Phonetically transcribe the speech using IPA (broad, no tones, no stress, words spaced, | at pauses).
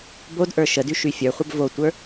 bodʔə˞ ʃədy ʃyfʲə˞χʷəb votʷə˞